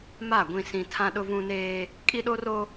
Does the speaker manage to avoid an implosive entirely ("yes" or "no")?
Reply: no